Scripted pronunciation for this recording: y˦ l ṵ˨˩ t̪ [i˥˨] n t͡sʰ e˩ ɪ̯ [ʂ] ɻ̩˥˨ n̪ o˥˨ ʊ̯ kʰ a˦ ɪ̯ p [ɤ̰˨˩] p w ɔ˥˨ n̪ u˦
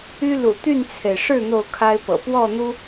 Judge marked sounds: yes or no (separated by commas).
no, yes, yes